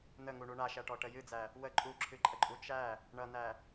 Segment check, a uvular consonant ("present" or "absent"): absent